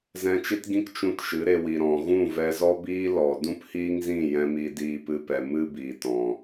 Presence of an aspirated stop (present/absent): absent